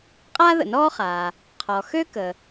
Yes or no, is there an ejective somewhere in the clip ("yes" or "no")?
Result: yes